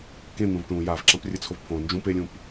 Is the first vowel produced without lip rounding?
yes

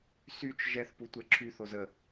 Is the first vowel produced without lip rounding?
no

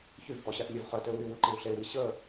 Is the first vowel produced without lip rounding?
no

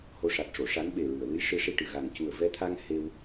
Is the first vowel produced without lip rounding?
no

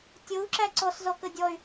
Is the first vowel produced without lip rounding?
no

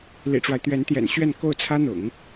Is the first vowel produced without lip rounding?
yes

